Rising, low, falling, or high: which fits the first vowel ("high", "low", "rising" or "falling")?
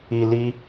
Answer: low